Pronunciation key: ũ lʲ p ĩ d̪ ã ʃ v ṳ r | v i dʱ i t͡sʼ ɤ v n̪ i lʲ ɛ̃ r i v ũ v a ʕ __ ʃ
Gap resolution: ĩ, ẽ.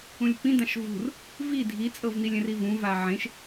ẽ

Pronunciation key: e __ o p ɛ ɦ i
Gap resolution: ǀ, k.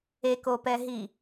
k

